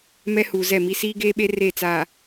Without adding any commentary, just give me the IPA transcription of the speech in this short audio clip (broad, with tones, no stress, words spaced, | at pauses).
mɛ˦huː˨zɛ˦˨mi˦ siː˦ɡeː˦ɓe˦ re˦˨ t͡saː˨